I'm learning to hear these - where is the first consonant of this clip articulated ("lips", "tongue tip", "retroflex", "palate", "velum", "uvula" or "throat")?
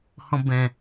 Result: throat